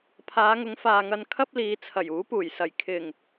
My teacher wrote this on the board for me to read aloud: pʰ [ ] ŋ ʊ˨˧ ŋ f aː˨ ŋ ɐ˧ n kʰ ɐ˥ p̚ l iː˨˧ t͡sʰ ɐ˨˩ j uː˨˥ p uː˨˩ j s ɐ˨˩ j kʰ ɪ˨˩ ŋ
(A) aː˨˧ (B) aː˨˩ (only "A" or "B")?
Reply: A